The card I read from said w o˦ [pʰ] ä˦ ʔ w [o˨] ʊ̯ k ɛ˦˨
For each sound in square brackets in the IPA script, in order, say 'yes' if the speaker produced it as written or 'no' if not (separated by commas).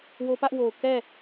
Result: no, yes